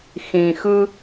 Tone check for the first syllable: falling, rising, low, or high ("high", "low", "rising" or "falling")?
low